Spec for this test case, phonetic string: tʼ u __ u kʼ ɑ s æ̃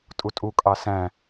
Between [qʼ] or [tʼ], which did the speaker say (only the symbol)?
tʼ